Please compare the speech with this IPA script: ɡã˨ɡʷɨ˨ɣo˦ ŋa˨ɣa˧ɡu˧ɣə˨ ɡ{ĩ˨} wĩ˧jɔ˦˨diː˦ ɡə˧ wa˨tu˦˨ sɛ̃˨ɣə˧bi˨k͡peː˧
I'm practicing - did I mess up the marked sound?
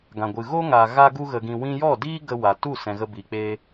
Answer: no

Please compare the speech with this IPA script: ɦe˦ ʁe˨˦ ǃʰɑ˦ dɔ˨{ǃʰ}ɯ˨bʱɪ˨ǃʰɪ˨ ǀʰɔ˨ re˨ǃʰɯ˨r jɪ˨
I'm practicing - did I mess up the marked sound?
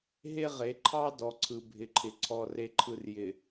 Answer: yes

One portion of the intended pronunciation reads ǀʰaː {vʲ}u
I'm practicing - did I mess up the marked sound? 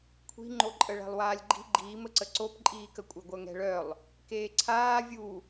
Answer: no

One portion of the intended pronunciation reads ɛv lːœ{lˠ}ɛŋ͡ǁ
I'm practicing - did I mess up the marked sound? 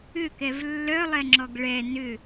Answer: no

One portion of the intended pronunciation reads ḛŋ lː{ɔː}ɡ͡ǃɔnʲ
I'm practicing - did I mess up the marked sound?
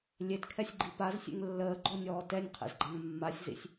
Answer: yes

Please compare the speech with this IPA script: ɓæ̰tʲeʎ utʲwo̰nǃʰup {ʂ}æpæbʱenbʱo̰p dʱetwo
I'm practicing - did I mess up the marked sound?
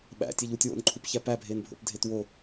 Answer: yes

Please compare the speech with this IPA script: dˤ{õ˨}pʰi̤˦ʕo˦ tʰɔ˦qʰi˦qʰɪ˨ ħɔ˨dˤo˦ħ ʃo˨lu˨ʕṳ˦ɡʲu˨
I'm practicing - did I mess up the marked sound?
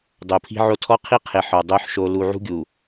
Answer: yes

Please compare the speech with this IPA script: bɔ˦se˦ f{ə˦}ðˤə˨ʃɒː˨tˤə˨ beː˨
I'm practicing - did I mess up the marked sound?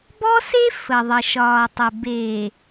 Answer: yes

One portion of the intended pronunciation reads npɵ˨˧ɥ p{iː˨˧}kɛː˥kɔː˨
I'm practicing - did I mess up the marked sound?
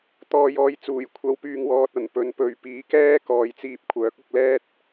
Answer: yes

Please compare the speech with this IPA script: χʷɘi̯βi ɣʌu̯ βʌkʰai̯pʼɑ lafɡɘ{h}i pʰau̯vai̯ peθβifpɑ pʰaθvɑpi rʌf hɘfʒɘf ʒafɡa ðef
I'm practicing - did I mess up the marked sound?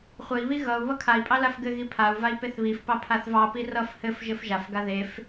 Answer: yes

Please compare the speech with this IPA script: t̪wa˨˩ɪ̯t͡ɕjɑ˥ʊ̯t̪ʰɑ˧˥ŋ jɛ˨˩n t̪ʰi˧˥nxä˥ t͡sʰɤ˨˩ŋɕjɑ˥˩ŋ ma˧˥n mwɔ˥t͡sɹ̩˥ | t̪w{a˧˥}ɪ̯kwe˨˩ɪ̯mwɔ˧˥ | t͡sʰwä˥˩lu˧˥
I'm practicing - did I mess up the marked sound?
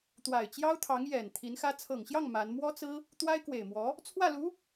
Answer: yes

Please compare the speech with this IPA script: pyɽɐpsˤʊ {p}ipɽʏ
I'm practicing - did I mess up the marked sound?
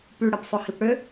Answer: yes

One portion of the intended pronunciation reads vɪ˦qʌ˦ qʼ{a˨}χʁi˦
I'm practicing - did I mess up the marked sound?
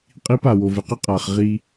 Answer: no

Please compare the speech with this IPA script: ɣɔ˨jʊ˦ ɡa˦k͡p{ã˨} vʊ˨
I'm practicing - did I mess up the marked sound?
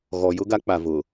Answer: yes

